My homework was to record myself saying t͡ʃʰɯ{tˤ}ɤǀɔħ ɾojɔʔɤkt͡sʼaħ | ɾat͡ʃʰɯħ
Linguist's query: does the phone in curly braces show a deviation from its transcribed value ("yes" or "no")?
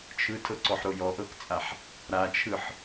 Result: yes